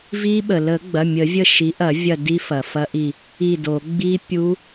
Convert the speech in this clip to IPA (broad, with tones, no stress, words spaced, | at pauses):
vi˦˥ɓə˩ lə˨˩˦ɡ͡bɐ˩˧˩ mʲə˨˩˦vʲə˦˨ ʃi˩˥ʔɐ˨˩˦ vʲɐ˦˨di˦˥ fɐ˩fɐ˦˥ʔi˦˨ | i˦˨do˨˩˦ ɡ͡bi˦˥ pʲu˦˥